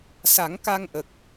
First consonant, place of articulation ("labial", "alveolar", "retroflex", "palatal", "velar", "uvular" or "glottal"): alveolar